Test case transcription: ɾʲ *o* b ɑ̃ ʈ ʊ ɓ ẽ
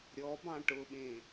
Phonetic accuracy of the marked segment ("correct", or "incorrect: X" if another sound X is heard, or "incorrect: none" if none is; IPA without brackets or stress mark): incorrect: ɔ